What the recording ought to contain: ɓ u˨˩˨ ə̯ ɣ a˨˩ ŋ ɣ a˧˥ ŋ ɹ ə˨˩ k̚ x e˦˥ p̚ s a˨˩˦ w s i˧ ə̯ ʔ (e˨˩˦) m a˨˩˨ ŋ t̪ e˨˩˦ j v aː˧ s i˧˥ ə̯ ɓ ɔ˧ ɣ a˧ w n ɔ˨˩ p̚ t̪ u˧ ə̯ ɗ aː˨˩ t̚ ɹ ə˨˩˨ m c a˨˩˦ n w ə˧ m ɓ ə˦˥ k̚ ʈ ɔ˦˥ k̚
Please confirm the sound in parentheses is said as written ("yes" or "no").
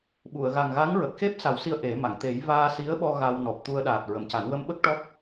yes